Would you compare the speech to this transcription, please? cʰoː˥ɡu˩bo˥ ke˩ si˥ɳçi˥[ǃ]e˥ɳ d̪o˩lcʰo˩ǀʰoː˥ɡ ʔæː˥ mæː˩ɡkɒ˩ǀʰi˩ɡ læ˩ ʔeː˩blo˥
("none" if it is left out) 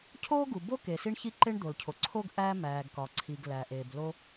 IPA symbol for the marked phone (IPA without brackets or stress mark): ǃ